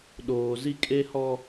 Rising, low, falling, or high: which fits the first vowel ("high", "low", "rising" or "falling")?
low